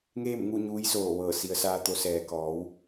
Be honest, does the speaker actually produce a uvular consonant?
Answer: no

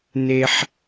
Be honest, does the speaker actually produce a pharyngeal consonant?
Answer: yes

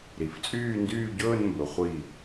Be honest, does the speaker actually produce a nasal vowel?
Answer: no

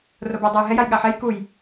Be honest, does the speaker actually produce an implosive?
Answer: yes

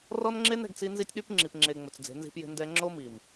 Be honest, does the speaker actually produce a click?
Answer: yes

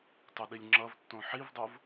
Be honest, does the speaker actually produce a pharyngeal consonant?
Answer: yes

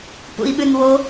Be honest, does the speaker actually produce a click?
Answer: no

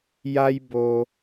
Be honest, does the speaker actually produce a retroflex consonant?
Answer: no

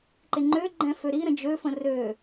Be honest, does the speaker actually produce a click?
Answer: yes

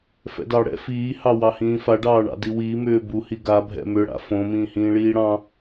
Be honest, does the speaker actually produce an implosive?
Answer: no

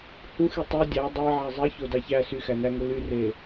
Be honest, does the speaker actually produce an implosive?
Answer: no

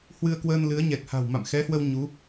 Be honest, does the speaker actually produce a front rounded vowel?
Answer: no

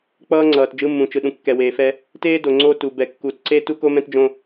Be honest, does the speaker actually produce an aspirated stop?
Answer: no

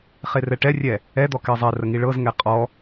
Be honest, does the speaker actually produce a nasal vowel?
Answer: no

